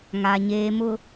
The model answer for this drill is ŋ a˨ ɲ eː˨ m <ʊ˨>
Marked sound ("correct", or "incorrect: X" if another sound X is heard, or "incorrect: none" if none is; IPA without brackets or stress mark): correct